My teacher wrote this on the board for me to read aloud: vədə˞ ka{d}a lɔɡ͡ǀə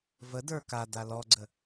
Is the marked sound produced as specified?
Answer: yes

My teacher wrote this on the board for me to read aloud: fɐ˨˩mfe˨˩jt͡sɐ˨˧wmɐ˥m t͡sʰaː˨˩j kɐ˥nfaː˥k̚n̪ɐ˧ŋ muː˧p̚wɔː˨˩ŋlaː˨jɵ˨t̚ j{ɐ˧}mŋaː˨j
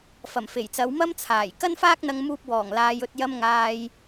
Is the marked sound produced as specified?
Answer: yes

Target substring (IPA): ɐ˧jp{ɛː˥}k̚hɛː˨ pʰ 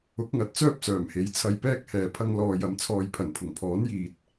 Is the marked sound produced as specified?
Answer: yes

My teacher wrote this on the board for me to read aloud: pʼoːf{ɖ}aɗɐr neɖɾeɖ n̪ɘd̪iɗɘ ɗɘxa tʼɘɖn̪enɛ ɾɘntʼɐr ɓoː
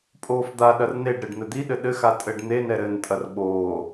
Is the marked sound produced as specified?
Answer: no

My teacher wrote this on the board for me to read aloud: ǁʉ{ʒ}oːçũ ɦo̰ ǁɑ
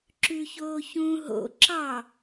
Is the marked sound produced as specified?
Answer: no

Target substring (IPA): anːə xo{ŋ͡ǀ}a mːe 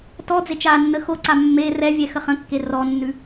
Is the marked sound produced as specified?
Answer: no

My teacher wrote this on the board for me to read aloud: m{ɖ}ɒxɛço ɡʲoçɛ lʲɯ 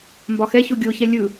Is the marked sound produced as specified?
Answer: no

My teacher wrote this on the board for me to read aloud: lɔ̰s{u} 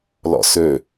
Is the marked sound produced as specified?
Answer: no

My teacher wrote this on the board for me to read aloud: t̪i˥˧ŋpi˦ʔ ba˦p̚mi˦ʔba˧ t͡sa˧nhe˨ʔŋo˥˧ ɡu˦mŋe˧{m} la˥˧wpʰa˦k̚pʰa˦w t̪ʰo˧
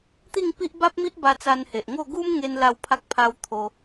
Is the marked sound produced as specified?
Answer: no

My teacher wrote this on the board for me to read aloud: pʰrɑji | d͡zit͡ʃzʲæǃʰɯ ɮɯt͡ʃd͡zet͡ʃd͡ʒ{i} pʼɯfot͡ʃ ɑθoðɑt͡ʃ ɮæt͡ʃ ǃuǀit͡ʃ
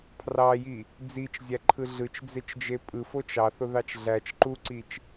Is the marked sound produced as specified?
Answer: no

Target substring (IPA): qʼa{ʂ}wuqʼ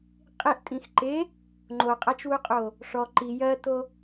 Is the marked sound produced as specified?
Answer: no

